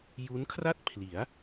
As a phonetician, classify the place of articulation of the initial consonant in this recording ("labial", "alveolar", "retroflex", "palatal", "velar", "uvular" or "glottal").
palatal